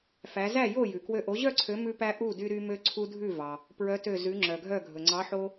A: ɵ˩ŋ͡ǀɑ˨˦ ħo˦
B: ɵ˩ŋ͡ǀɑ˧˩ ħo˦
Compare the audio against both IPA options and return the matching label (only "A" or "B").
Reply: A